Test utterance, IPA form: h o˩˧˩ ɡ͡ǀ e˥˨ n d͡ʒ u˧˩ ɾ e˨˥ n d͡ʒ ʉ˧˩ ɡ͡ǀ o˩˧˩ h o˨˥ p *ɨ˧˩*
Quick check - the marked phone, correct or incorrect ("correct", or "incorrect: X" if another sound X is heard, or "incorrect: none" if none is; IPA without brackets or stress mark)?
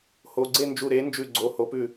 incorrect: ʉ˧˩